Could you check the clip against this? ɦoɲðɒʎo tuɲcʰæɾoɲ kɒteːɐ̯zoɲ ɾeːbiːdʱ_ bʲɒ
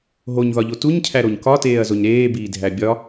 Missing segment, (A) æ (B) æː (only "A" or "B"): A